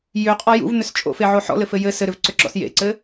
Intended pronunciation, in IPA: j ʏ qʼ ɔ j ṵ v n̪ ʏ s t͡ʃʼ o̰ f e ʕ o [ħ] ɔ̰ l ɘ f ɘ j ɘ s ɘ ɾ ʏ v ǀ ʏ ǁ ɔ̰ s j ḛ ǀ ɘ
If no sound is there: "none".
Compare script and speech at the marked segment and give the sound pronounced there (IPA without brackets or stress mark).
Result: ħ